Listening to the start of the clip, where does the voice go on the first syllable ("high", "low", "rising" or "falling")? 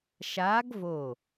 rising